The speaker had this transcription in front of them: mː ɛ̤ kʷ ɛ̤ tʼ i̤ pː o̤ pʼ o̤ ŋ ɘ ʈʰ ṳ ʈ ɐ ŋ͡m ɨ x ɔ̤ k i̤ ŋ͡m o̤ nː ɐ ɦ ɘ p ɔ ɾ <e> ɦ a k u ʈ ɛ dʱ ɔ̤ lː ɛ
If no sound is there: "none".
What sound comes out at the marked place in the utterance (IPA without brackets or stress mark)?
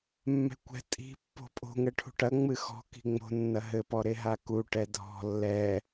e